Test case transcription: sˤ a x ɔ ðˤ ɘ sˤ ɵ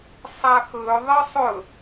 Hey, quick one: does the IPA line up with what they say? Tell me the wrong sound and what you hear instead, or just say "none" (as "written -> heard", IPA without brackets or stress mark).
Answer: ɔ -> ɵ